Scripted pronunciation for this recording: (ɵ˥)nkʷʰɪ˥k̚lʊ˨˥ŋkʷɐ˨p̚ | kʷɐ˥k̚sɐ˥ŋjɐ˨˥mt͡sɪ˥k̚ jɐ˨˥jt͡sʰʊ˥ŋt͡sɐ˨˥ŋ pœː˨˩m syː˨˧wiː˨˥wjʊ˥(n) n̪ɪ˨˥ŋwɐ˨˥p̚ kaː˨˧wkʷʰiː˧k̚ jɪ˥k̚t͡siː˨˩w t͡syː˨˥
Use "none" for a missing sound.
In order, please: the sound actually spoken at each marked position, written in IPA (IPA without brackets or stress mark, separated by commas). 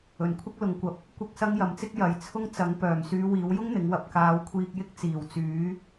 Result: ɵ˨˩, ŋ